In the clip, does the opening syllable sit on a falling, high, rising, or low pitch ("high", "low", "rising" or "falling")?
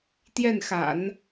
falling